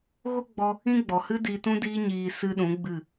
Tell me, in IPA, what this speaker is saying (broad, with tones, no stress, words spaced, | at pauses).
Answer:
ɣo˦ɡ͡bɔ˧ | ĩ˦ɡ͡bɔ˨ hɨ˦di˧ tũ˦diː˦ɲiː˧ sɨ˦ɗũ˨˦ɡ͡bɨ˦˨